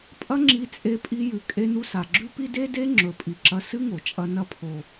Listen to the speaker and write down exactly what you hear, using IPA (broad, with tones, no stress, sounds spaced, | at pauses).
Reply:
pʼ ɐ˥ ŋ͡ǁ i˧ t͡sʼ e˧ pʼ i˧ j ʉ˩ kʼ e˧ n u˧ s a˩ ɡ͡ǁ ʉ˥ p i˥ d e˥ d e˥ ŋ͡ǁ ɵ˩ pʼ i˩ ǁ ɐ˧ s ɨ˥ ŋ o˩ t͡ʃʼ ɐ˧ n ɐ˧ pʰ o˩